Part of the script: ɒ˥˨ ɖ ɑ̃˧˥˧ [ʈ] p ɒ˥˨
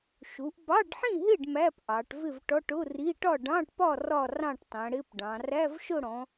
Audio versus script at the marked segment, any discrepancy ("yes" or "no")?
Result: no